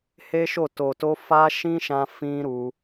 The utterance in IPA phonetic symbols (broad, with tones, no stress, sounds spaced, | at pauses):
h e˦ ʃ o˦˨ t o˨ t o˧ f a˦ ʃ ĩ˦ ʃ ã˧ f ĩ˦ ɾ u˧